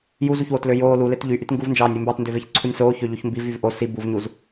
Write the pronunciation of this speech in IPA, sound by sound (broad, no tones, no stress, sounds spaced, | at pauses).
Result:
j u z u ç w o t l ø j oː l u l e t ʎ y ʔ y t ŋ ɡ u v n d͡ʒ ɑː nʲ e m b ɑː t n d ø v e ç ǀʰ u nʲ s oː ç ø ʎ o ç m b i v y v ʔ o s i b u v ɲ u z